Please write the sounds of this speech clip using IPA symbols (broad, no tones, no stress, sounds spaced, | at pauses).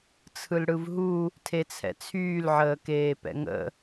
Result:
t͡sʰ ɯ l ɽ ɯ v ɦ u | tʰ e t͡sʰ ɛ̰ t͡sʰ yː l ʕ əː k eː p ɛ̰ ŋ ə̰